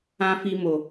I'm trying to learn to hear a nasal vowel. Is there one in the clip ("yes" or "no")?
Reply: yes